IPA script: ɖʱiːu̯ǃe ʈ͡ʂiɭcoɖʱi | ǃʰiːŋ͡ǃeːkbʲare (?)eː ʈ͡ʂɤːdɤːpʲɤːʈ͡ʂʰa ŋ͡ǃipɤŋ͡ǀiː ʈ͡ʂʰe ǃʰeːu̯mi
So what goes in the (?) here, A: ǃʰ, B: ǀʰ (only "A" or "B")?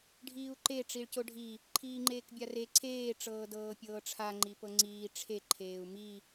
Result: B